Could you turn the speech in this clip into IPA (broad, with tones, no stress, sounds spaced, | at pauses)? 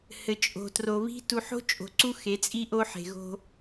h ɘ˨ t͡ʃʼ o̤˨ t r o˨ β i̤˦ t u˨ ħ o̤˦ t͡ʃʼ o̤˨ ǀ u˦ x e˨˦ t͡sʼ i˦ ʔ o˦ ħ e̤˨ ɣ o̤˦